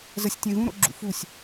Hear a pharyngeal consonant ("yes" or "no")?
no